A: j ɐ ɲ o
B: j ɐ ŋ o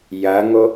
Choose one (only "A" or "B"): B